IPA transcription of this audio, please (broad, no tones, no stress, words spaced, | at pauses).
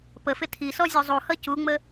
pəfɪ tʰisɔ zʲuzˤuhʌ cuŋ͡mə